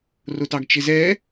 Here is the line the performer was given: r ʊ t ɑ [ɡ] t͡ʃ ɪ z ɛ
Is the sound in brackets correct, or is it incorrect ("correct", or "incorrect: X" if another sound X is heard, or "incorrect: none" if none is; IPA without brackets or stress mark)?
correct